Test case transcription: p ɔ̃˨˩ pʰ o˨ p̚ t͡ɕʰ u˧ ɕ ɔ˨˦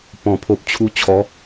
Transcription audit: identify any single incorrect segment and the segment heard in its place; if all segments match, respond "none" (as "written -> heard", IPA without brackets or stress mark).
ɕ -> t͡ɕʰ